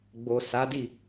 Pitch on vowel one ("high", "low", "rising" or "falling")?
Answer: low